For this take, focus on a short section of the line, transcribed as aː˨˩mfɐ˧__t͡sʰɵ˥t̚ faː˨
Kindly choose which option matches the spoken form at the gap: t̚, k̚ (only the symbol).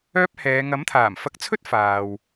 k̚